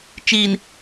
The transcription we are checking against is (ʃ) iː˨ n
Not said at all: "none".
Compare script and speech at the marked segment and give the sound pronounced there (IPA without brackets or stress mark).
t͡ʃ